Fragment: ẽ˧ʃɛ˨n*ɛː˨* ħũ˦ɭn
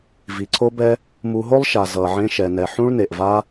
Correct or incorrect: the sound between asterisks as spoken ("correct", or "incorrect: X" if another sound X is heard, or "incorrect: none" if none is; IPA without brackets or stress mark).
incorrect: ɛ˨